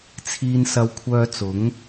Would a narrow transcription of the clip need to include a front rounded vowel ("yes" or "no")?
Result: yes